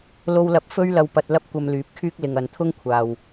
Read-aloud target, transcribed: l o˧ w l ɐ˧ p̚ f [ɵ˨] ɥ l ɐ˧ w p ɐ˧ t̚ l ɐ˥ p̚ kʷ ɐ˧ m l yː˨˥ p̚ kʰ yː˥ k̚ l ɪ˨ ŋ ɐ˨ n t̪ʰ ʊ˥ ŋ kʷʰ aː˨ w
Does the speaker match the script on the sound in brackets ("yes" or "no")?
no